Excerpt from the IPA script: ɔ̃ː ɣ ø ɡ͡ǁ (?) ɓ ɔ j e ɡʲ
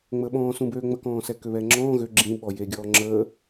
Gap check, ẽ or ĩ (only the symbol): ĩ